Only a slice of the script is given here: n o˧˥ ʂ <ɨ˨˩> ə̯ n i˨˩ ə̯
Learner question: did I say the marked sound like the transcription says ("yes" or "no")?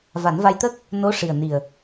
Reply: no